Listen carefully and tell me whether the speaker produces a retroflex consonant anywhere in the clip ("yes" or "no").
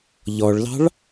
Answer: yes